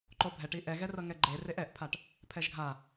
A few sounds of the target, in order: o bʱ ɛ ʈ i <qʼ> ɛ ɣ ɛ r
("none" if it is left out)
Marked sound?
ʔ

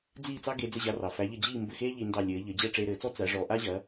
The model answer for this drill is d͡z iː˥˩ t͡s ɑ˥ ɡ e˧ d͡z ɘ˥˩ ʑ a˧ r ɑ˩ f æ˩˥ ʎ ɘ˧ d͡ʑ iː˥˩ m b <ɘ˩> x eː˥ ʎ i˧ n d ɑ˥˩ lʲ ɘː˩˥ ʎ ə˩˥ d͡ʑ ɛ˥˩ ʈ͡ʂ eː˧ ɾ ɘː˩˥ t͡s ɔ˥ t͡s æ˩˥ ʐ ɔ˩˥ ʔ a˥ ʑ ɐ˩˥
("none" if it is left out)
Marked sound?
ɘ˥˩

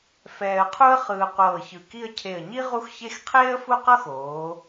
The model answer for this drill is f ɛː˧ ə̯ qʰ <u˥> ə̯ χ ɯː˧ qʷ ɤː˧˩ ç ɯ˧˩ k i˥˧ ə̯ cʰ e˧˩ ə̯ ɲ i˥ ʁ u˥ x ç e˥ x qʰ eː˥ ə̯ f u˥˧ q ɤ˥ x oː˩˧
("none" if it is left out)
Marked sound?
u˥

